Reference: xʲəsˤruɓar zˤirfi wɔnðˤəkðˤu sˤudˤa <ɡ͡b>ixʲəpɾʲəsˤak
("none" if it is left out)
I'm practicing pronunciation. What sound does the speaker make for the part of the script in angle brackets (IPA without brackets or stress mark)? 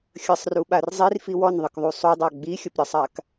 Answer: ɡ͡b